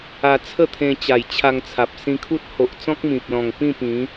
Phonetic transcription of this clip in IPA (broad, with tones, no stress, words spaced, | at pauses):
a˧t͡sʰə˥˧t̪ʰẽ˧ t͡ɕa˨˩j t͡ɕʰa˧ŋt͡sʰa˨p̚ sĩ˧kʰu˦t̚ ho˨ʔt͡sɔ̃˦k̚mĩ˨p̚lɔ̃˨˩ŋ pĩ˥˧pĩ˨˦